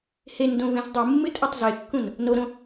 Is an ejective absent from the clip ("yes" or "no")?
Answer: no